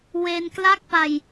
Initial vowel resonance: oral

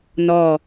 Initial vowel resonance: oral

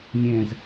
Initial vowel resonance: nasal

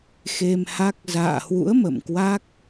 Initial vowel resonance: oral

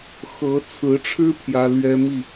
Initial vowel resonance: oral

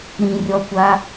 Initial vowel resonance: nasal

